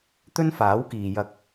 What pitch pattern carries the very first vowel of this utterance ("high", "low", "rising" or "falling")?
high